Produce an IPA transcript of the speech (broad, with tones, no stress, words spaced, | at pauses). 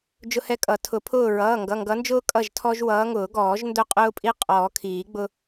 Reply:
d͡ʒʊ˦hɛ˦kʼʌ˨˩˦ tʰʊ˨˩˦pʰʊː˦˨ ɹʌː˩˧˩ŋɡʌ˩˧˩ŋɡʌ˨˦nd͡ʒʊː˦ kʼʌ˦˨ʒtʰɔ˦ʒwʌː˨˦ŋʊː˨˩˦ ɡɔː˨˩˦ʒndʊ˦˨qʼʊː˦pʼi˦ qʼɔː˨˩˦kʰiː˨˩˦ɡ͡bʊ˦